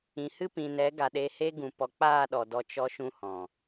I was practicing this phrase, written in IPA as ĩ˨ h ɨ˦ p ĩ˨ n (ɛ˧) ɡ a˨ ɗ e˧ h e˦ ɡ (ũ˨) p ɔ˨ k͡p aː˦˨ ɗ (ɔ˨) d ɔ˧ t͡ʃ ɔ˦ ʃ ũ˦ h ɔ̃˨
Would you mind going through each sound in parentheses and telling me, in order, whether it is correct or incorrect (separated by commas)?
incorrect, correct, correct